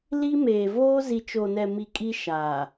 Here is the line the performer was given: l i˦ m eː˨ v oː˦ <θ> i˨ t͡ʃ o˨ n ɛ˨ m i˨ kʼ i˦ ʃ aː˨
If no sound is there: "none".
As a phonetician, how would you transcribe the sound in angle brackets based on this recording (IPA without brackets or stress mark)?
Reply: z